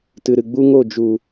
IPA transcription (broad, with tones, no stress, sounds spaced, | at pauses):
t ɨ˨ ɾ ɨ˨ ɡ͡b u˦ ŋ o˦˨ d͡ʒ u˨